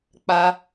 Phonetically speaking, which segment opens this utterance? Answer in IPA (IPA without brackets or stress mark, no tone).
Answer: k͡p